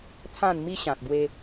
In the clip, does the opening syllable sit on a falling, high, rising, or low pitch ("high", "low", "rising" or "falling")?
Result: falling